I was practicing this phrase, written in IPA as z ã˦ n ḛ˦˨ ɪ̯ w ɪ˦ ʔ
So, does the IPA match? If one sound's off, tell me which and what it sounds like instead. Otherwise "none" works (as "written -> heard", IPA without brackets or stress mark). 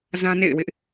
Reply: none